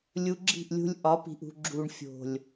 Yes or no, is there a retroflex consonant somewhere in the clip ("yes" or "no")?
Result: yes